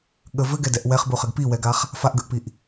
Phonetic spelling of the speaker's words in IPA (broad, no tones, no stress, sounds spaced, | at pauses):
ɠ ə v ɘ ɡ ɛ d ɛ ʔ w ɛ χ b u χ ə ɡ p i w ɛ ɡ a χ | f a ʔ ɡ ə ʔ p i ʔ